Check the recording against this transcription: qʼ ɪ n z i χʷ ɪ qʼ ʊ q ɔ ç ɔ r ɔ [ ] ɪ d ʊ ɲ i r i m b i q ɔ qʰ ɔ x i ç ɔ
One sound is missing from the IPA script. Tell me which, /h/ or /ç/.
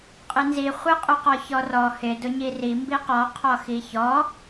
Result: h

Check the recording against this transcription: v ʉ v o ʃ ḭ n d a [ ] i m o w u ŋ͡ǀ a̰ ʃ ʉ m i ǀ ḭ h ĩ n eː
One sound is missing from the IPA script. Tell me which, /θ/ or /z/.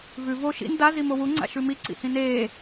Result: z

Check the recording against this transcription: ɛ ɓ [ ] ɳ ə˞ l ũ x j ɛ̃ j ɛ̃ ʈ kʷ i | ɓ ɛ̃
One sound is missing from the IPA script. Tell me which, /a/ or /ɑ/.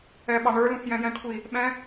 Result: ɑ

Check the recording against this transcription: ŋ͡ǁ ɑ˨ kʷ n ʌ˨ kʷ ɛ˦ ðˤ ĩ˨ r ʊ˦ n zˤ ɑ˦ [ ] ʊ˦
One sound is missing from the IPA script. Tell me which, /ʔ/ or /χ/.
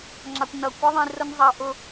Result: ʔ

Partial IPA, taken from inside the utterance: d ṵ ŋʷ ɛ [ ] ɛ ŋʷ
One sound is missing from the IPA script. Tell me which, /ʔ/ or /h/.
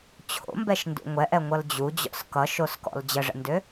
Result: ʔ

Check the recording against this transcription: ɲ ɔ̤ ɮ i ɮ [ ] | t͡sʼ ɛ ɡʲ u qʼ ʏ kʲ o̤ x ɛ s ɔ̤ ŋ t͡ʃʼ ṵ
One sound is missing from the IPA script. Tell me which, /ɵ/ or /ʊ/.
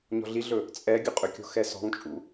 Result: ɵ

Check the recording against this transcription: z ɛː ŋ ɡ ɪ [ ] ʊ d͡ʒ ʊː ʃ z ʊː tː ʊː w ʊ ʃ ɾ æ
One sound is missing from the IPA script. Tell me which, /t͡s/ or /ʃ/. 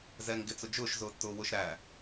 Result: t͡s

